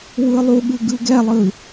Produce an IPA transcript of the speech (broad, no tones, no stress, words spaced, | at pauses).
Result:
wɯlˠuɠɯ ɡɯɡɛlˠɯ